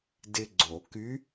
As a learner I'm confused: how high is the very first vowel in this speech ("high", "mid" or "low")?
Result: high